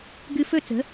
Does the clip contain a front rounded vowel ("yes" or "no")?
no